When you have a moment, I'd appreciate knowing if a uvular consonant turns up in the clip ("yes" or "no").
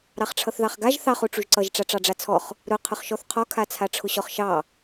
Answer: yes